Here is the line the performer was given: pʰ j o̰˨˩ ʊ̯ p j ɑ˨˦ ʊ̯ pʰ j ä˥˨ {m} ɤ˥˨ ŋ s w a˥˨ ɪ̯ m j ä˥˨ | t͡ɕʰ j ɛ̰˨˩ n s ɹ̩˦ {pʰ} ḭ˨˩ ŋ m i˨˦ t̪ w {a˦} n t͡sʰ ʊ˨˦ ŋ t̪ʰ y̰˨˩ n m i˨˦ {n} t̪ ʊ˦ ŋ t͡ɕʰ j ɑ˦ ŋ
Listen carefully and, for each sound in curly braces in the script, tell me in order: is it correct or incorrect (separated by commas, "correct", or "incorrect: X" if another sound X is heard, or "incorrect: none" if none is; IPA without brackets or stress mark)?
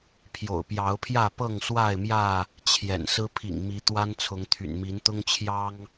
incorrect: p, correct, correct, correct